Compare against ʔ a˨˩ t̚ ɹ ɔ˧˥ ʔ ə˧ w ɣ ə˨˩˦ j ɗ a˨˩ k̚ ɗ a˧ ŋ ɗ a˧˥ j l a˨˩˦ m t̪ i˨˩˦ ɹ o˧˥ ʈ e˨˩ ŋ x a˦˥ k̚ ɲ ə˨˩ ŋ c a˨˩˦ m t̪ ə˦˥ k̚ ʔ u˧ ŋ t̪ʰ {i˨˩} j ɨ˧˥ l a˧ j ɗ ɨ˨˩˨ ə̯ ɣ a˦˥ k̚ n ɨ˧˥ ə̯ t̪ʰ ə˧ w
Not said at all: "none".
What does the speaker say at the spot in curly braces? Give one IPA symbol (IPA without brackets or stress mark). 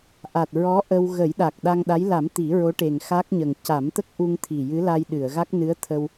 i˨˩